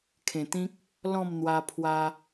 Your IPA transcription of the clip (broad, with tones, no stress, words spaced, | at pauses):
kʰẽ˨˩t̪ĩ˦k̚ | lɔ̃˥˧mn̪wa˧pʰwa˧